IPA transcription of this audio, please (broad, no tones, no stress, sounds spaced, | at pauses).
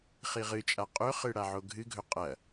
χ i ʁ ɨ t͡ʃʼ a qʼ ɵ χ ɨ ɽ a ʕ o ɡʱ ɨ ɡʱ ɵ qʼ ɐ